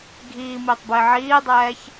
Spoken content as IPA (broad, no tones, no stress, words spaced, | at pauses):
ɡʱiːmiːtˤbɪː ʕiːdˤɛːç